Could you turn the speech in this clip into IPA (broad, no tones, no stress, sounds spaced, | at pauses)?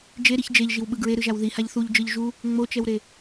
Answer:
d͡ʒ e ɾ i ç d͡ʒ e ʎ ʒ i w ɓ ɯ ɡ ɹ e ɾ ɯ ʒ a w ð i h a ʎ θ u ʎ d͡ʒ ɯ ʎ ʒ u | ŋ͡m o t͡ʃ ɛ w ɾ e